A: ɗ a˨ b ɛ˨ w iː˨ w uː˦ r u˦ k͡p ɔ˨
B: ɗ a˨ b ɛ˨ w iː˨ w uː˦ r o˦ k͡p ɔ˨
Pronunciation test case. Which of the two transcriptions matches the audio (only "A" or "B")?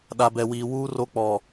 B